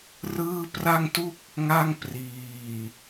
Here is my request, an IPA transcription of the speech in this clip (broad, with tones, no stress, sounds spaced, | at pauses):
r ɯː˥˩ p r a˥˩ ŋ t u˥˩ k̚ | ŋ a˥˩ ŋ p r iː˨˩